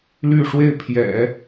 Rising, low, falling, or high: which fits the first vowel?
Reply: falling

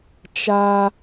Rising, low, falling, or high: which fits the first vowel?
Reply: high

